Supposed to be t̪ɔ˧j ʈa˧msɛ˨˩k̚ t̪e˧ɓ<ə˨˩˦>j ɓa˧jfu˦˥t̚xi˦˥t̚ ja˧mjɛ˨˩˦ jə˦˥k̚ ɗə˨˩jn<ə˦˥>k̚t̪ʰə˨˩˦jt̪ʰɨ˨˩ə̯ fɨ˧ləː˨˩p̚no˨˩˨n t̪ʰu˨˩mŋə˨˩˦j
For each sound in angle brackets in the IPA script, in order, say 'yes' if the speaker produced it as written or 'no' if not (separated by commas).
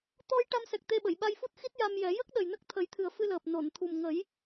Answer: no, yes